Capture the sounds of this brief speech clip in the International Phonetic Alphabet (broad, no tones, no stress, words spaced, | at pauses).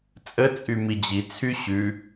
t͡sʼət͡sʼy mid͡ʑit͡sʰy ɕʉ